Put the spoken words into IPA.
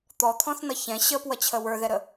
t̪ ɔ t̪ʰ ɔ̃ θ n ʌ ç ɛ̃ ɕ ə p w ʌ t͡ɕʰ ə w ə˞ ð ɛ ɾ ə

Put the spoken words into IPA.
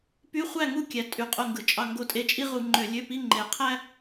p y˧˥˧ χʷ æ˥˩ ŋ u˥˩ kʲ æ˩˧ tʼ y˩˧ qʼ o˥˩ ŋ ɡ ɯ˧˩˧ t͡ʃʼ ɑ˥˩ ŋ ɡ o˧˥ tʼ e˧˥ t͡ʃʼ i˥ ʁ u˧˩˧ ŋ͡ǃ ø˧˩˧ lʲ ø˧˥˧ p i˧˥˧ ŋ͡ǃ e˧˩˧ qʰ æ˥

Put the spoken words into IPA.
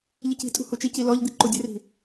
ʎ i c i̤ tʼ ṳ h u t͡ʃ i c i l ɔ ʎ d̪ i ǃ u dʲ ɘ r i̤

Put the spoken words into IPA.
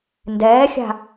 n d ɛː xʲ a̤

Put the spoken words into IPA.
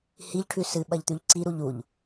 h i ʎ ʈʰ ʉ s ɨ ɓ ɐ ʎ t̪ ʉ ʎ ǀ i ɾ u ʎ u ʎ

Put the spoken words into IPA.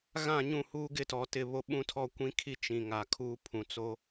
ɣ ã˦˨ ɲ ũ˦˨ h uː˦ ɡ ɪ˦ t ɔ˨ t ɪ˦˨ β o˦ ɓ ũ˦ tʰ ɔ˦ kʷ ĩ˦ kʰ i˦ t͡ʃ ĩ˨ ŋ a˨ kʰ uː˦ pʰ ũ˨ t͡s o˦

